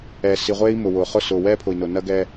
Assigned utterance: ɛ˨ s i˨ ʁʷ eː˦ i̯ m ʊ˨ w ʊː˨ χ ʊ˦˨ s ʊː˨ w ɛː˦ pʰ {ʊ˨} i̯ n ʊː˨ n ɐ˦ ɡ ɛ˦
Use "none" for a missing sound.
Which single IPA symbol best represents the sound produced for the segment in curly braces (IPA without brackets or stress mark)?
ʊ˨